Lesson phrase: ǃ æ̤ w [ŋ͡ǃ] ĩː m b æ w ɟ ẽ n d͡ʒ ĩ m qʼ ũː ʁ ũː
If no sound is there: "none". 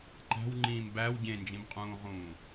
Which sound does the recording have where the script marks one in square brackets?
ŋ͡ǃ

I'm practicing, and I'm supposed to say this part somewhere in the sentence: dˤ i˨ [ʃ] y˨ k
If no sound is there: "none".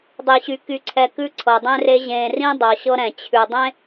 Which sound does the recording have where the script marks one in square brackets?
ɕ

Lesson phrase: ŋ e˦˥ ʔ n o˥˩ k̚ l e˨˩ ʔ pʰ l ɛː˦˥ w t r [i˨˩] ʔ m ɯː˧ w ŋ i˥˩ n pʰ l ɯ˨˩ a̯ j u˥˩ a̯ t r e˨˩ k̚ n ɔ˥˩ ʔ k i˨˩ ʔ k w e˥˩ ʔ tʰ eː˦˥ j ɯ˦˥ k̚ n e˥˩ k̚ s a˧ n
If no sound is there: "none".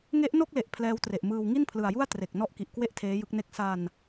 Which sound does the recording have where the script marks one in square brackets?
e˨˩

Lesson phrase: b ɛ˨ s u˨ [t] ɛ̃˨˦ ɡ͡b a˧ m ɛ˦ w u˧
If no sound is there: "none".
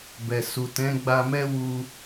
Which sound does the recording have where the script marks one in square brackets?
t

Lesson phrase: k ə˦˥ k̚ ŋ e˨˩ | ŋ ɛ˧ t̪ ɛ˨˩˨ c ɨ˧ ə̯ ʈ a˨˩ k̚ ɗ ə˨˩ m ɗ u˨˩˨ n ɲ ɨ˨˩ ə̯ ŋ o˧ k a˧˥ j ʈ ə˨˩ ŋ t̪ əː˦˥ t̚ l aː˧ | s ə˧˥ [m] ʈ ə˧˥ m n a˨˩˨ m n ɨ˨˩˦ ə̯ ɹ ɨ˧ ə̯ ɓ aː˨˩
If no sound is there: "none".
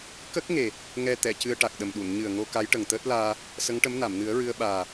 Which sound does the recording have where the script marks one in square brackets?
ŋ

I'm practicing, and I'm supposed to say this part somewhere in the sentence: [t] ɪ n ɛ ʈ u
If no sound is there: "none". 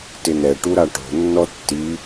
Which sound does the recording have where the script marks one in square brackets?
t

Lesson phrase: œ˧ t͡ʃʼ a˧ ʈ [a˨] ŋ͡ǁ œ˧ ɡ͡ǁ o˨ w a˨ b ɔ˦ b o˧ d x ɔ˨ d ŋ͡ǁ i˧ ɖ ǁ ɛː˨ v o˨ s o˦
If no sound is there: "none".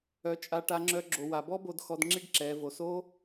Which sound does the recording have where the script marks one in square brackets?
a˧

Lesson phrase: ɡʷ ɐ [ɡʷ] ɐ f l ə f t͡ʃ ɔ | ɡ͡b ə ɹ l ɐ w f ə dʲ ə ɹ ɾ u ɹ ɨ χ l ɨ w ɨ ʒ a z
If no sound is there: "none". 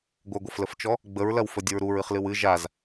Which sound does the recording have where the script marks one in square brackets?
ɡʷ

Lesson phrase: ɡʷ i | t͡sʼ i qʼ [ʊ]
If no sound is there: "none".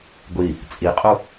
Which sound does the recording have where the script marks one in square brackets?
u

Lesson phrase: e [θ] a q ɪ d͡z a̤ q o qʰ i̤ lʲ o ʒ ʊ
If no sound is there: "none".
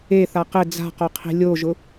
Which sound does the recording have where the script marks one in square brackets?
θ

